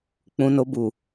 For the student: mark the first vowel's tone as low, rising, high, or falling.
low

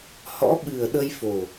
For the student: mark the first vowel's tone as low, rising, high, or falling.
rising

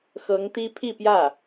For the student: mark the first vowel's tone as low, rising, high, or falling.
rising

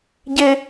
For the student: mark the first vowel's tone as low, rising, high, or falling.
high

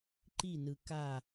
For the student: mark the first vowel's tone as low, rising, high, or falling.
falling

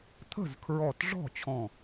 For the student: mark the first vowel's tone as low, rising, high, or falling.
falling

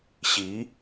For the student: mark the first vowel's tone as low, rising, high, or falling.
rising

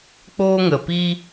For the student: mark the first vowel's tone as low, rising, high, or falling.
high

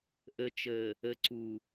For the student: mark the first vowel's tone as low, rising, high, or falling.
low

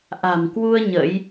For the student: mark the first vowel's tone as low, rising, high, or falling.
low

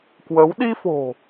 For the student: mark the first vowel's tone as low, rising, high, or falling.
rising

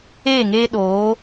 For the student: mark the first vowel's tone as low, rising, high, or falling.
falling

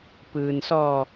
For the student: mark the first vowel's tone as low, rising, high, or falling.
low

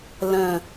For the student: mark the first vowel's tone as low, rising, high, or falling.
low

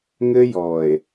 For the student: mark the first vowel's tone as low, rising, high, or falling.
high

